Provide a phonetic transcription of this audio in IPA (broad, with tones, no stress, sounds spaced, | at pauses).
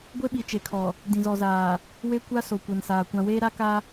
ɡʷ e˦ ɓ i˨ t͡ʃ e˨ kʰ ɔ˨ | d ĩ˨ z ɔ˨ z aː˨ | w e˦ kʷ a˦ s o˨ kʷ ɛ˨ n s aː˨ kʷ ã˨ w eː˦ ɾ a˦ k a˦